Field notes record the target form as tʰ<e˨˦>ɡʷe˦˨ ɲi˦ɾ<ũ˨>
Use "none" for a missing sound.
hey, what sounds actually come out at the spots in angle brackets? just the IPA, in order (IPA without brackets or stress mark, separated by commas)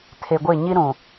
e˨, ũ˨